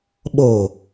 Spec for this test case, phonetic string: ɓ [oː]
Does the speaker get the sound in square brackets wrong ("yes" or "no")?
no